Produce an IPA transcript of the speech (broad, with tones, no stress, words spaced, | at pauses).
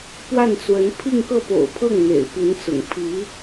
pwa˥˩nt͡swə˧˥n pʰi˥˧ŋkɤ˥˩po̰˨˩ʊ̯pʰɤ˥˩ŋ n̪ḛ˨˩ɪ̯pi˧˥nt͡sʊ̰˨˩ŋ pʰi˧˥